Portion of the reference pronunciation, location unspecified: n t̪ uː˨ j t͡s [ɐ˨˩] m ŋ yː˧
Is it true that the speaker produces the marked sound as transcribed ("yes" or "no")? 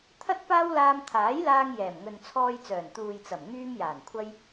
yes